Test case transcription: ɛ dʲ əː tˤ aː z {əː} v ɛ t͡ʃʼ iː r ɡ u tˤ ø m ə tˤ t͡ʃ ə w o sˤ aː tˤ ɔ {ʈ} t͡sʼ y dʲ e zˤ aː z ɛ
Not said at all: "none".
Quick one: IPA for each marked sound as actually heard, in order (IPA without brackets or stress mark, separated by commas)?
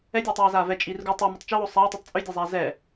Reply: aː, tˤ